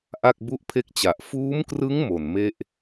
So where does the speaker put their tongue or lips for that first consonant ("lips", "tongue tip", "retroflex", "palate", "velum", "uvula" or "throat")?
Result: throat